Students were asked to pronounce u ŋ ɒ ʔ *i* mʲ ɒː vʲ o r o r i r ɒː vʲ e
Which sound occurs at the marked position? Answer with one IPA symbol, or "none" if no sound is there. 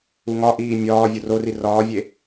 iː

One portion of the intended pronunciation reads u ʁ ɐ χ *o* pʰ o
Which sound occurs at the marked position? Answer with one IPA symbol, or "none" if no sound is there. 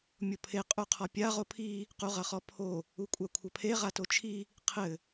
ɔ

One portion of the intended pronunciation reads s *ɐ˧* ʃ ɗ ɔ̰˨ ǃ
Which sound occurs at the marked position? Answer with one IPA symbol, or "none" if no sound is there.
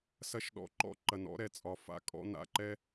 ɐ˧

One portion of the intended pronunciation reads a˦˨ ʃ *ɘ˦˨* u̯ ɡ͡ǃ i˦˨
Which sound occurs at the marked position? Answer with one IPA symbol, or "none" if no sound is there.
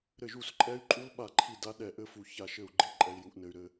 ɘ˦˨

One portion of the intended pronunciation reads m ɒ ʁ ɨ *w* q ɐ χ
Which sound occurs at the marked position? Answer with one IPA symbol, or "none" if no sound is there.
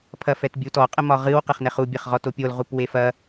w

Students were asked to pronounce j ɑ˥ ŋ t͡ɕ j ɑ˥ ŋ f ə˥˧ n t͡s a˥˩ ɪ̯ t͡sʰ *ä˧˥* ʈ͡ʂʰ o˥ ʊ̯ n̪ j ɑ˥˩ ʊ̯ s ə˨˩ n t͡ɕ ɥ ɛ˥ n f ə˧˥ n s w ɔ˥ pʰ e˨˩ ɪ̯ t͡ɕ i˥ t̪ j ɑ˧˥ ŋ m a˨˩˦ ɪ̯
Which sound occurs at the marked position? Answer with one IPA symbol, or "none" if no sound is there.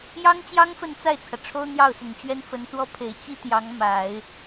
ä˩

